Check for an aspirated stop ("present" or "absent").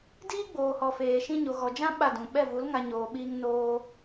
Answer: absent